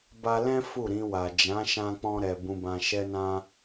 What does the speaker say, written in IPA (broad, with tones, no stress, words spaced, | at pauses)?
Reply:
ba˧lɛ̃˦ fu˦˨ɾĩ˧wa˨ d͡ʒã˨˦ʃã˧k͡pɔ̃˧ ɾɛ˨ bũ˧bã˧ʃɛ˦nã˦